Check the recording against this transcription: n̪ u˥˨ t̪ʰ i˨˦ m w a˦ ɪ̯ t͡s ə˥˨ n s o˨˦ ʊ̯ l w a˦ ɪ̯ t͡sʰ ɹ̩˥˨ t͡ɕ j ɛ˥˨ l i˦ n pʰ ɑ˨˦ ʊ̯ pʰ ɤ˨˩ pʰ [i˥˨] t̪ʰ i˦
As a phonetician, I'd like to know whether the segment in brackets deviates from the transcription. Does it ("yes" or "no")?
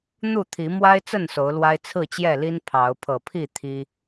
no